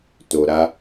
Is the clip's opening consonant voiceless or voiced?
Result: voiceless